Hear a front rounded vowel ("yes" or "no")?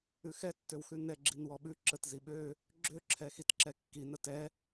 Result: yes